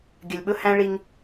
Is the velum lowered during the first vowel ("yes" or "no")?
no